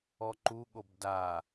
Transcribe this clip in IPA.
ɔ ǃ u ɠ o b d a

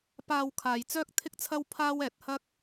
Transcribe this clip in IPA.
p aː˧ w kʰ aː˨ j t͡s œː˥ k̚ t̪ʰ ɪ˥ k̚ t͡sʰ ɐ˥ w pʰ aː˥ w ɛː˧ t̚ h ɐ˥ k̚

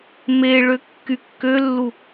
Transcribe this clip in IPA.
m e ɭ ø kː y kː ø lː u

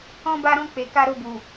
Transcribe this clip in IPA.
ɔ̃˧ b a˧ ɾ ɔ̃˧ k͡p e˨ k a˧ ɾ o˧ b u˨

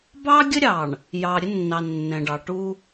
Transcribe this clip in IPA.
b ɑ˦ ɡʲ ə˦ ɾʲ ɑ˨ ɳ | j ɑ˨ ɾʲ ə˦ nː ɑ˨ nː ɛ̃˨ ɖ ɑ˨ ʈ u˦

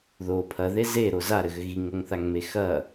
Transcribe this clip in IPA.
ð o pʰ ɐ ð e z e ɾ o z a ɾ ɘ ɣ ɘ ɣ i ŋ o ŋ θ a ŋ m e x ɐ

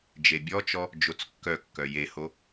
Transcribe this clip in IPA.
d͡ʒ e bʲ ɔ t͡ʃ ɔ | d͡ʒ o t͡s kː œ kː œ j e h o

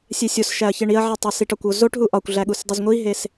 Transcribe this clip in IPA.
sʲ e sʲ o s ʃ æ ɐ̯ ç e ɳ i ɐ̯ ʕ i tˤ e s i ʈ ɒ kʷ o z o ʈ ɦ u ʔ ɒ kʷ ɮ æ ɠ u s dˤ i z ŋʷ i ɦ e s

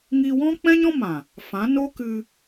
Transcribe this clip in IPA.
ŋ iː˧ w ɔ̃˦ k͡p ɛ̃˦ ɲ ɔ̃˦ m ã˨ | f ã˨˦ n o˦ k ɨ˧

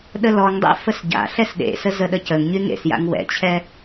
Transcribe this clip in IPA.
ɗ ə l ɔ ŋ dˤ ḛ f ə s ɟ a̰ ɬ ɛ s ɗ ḛ s ə z ə ɗ ə c ə ŋ ɲ y ŋ ḛ s j a̰ ŋ w ɛ̰ t͡ɕʰ ɛ

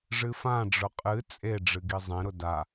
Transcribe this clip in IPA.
ʐ ɨ f ã ɖ͡ʐ ʊ qʼ ɨ t͡sʼ e ɖ͡ʐ ɨ ɡ i zˤ ẽ ɾ ʊ d a

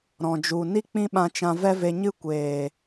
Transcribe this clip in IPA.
ɾ ɔ̃˨ d͡ʒ u˨ n i˦ k͡p ĩ˦ ɓ ã˧ t͡ʃ ã˧ v ɛ˦ v e˧ ɲ ɨ˦ kʷ eː˨

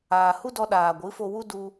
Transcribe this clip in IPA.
aː˨ h u˦ d ɔ˧ ɗ aː˨ ɡʷ ɨ˨˦ f o˧ w u˦ d u˧

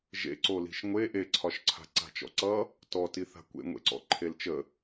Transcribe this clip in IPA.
ʒ ḛ ǀ o l i̤ ʃ ŋʷ e ʔ e ǀʰ ɒ ʃ ǀʰ a̤ ǀ a̤ t͡ʃ ɔ̰ ǀ ʌ | t ɔ t i θ a̤ kʷ ḛ ŋʷ ḛ ǀ ɔ̰ ǃʰ e l t͡ʃ ə

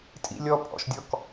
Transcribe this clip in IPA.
tʼ ḭ lʲ ɔ pʼ ɔ̰ ʃ dʲ ɔ k

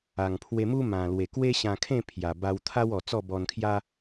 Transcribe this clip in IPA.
a˨˩ ŋ pʰ w e˧ m u˦ m ã˨˩ l w e˨˩ k w e˦ ɕ ã˧ kʰ ẽ˥˧ pʰ j a˨˩ b a˧ w t̪ʰ a˦ w ɔ˨˩ t͡s ɔ˥˧ b ɔ˧ n kʰ j a˦

